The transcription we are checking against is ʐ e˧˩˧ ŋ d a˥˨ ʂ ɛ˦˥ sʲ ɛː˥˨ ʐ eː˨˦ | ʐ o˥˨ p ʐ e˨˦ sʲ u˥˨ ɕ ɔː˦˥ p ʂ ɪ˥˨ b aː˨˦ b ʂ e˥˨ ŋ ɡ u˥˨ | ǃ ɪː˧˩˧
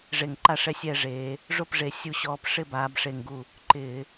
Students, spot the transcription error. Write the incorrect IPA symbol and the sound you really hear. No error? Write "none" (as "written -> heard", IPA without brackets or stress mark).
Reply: d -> ǃ